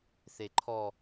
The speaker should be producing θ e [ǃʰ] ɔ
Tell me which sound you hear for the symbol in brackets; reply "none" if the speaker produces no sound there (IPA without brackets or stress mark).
ǃʰ